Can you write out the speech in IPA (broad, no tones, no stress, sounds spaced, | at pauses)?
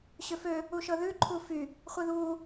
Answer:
ɕ ø f ø | u ʃ ɤ ð ʉ ǃʰ u f y | χʷ i ð u